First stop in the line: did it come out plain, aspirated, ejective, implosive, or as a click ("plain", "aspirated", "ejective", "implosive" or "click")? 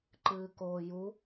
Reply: click